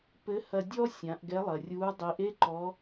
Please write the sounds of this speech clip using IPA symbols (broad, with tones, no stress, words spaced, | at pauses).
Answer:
pɘ˧˥hɐ˧dʲɔ˥ sʲã˩˧ʔɡɛ˧˥lˠɐ˩rʲuː˧˥ dˤi˩˧ʔe˥ ǃɔ˧˥